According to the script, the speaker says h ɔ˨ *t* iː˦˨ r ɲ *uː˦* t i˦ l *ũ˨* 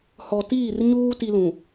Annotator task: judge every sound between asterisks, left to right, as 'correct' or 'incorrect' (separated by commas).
correct, correct, correct